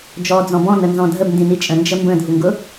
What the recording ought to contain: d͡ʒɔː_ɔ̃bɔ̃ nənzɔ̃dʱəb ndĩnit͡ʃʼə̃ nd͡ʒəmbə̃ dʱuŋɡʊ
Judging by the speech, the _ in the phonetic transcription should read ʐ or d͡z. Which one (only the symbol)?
d͡z